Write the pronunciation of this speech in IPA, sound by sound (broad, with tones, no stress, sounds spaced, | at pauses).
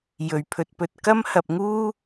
j ɵ˨˩ ɥ pʰ ɵ˧ t̚ p ɵ˧ t̚ k ɐ˥ m h ɐ˨ p̚ ŋ uː˥